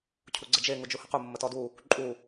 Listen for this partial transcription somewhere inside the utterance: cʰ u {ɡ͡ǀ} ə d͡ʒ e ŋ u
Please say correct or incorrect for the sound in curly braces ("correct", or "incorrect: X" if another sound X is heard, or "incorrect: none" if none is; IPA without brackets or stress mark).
correct